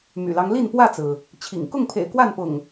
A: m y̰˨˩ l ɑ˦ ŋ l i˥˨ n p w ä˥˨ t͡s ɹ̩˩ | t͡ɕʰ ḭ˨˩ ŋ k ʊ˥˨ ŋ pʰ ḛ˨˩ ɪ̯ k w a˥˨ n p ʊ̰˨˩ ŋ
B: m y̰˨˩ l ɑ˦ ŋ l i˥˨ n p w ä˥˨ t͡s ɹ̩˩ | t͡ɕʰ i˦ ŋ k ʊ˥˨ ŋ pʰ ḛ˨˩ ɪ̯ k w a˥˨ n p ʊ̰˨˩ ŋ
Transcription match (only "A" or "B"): A